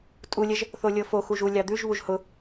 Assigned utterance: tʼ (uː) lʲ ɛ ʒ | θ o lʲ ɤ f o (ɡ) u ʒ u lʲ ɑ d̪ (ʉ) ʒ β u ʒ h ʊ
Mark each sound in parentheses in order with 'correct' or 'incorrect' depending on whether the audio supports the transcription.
incorrect, incorrect, correct

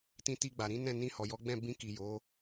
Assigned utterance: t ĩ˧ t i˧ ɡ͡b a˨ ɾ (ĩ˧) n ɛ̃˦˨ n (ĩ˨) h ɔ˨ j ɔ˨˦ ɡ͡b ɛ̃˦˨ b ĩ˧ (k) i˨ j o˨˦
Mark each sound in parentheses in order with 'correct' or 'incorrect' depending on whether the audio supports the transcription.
incorrect, incorrect, correct

